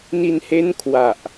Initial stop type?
aspirated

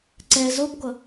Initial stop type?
click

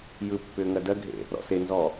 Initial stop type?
plain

